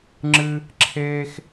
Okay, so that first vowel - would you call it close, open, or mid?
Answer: close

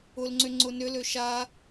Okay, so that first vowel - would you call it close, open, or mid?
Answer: close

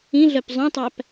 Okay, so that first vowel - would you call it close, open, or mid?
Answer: close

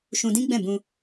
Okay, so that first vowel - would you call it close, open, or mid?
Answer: close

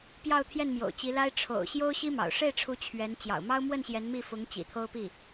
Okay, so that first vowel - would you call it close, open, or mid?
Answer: open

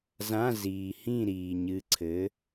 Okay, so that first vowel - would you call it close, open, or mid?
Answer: open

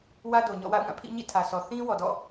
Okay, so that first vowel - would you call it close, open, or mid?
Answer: open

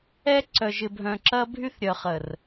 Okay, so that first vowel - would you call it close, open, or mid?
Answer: mid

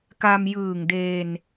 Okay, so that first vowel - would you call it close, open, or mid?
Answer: open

